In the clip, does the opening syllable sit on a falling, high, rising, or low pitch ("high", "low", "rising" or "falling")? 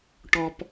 high